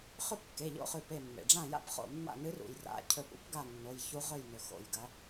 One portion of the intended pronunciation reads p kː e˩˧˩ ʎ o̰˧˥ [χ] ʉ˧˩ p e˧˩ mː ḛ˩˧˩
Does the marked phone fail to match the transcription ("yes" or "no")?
no